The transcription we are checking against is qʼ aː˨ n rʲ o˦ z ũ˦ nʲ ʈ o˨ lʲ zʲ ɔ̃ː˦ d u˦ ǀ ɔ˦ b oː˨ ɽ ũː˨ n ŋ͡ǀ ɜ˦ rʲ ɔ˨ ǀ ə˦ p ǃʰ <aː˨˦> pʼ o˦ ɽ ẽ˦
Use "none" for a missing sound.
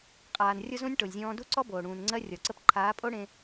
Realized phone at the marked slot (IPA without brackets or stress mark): aː˨˦